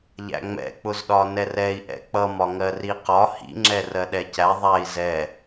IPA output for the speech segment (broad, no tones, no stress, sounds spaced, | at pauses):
ʎ æ̰ ŋ͡m ɛ̰ k͡p ʊ z ɗ ɒ n ɛ r ɛ i̯ ʔ ɛ̰ k͡p ʌ m ɒ ŋ ɜ r i q ɒ h ḭ ŋ͡ǁ ɛ r ɜ ɗ ɛ c æ ðˤ æ i̯ z ɛ